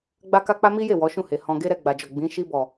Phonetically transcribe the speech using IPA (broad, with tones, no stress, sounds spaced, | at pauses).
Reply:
ɡ͡b a˦ k a˦ k͡p a˦ m i˦ j e˦˨ w ɔ˨˦ ʃ ũ˦˨ h e˨ h ɔ̃˨ ɡ e˧ ɾ ɛ˨ ɡ͡b a˨ d͡ʒ ɔ˨ ɡ͡b ĩ˨˦ ʃ i˧ b ɔ˨